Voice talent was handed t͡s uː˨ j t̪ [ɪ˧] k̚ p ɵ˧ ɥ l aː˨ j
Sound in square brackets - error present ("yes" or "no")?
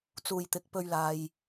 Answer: yes